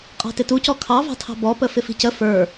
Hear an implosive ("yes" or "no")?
no